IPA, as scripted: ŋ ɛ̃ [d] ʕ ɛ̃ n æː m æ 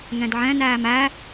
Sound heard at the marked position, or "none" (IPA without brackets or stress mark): d